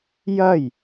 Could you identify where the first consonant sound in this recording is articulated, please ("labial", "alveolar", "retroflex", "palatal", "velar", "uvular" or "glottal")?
palatal